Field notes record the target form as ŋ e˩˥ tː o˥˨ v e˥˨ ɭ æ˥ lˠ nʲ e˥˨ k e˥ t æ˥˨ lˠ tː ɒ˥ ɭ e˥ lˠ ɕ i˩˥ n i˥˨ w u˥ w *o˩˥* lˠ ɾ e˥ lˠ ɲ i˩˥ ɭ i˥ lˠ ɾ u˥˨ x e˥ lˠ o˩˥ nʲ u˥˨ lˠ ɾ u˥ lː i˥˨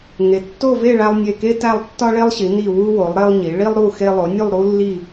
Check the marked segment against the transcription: correct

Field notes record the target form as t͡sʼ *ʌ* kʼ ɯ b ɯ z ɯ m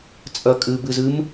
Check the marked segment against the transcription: correct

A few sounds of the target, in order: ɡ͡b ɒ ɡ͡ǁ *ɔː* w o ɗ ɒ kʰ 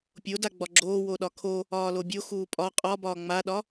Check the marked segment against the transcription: incorrect: oː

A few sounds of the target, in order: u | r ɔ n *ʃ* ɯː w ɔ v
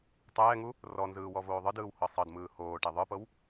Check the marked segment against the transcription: incorrect: z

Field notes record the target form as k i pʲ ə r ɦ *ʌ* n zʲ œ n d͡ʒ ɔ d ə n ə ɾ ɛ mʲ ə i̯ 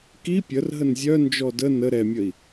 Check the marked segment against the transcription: incorrect: ə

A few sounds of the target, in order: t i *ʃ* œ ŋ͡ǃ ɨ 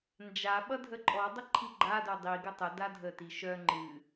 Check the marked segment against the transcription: correct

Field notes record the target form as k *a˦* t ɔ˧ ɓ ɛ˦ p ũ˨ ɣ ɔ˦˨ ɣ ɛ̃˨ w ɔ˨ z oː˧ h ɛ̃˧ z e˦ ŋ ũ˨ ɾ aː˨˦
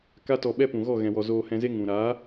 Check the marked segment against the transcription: correct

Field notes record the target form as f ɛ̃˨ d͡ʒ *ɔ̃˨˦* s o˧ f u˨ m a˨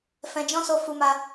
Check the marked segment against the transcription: incorrect: ɔ̃˦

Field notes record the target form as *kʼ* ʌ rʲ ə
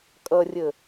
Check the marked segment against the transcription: correct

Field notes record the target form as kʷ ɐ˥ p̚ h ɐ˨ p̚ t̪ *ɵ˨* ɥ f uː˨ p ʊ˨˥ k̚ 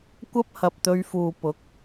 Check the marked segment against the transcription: incorrect: ɵ˧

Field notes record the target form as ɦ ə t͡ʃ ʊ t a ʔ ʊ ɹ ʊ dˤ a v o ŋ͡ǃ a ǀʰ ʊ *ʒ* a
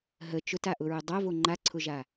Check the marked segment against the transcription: correct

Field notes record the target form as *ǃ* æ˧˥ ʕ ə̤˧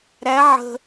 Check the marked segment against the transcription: incorrect: ɾ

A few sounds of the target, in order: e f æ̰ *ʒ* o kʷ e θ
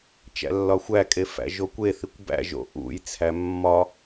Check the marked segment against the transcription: correct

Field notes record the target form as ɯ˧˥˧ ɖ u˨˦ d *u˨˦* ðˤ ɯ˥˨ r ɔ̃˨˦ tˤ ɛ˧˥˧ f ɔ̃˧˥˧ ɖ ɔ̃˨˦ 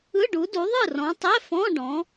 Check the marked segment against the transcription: correct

